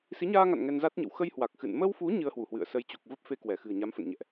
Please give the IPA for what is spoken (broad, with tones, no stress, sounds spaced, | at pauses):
s i˨˦ ɲ aː˧ ŋ a̰˧˨ n ŋ ɛ˧ n z a˦˥ t̚ ɲ ə̰˧˨ w x ə˧ j h w a˨˩ k̚ x ɨ̰˧˨ n m ə˧ w f u˨˦ ɲ ɨ˧ ə̯ h w u˧˩ h w ɨ̰˧˨ ə̯ s ə˨˦ j t͡ɕ u˨˩ k̚ v ə˦˥ p̚ f e˧ k w ɛ˧˩ x ɨ̤˨˩ ə̯ ɲ a˨˦ m f ə̰˧˨ n ɲ ɛ̰˧˨ ʔ